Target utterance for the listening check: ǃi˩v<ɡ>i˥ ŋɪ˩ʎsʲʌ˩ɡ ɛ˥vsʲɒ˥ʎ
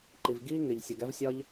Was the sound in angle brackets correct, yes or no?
yes